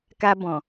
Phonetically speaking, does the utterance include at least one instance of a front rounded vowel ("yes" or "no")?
no